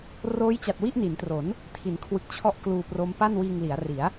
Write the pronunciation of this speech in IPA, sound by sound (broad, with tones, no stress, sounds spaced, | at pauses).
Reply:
r oː˦˥ j t͡ɕ a˨˩ t̚ w i˥˩ ʔ n i˩˦ n t r o˩˦ n | tʰ i˩˦ n kʰ w ɯ˨˩ k̚ t͡ɕʰ ɔ˥˩ ʔ k l uː˧ p r o˦˥ m p a˥˩ n w iː˧ ŋ l i˩˦ a̯ r i˩˦ a̯